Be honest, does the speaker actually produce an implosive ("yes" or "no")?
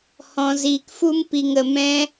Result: no